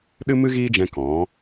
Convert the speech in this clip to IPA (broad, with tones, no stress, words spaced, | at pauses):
ɗɨ˦mɨ˦ɣiː˦d͡ʒɛ̃˧ kɔ̃˨˦